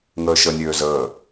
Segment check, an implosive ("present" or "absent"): absent